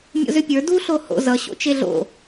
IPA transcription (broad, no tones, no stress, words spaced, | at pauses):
mʲo̰zʏpʲə˞ duɬo ho̰ zʌɕo̰ t͡ʃeɮo̰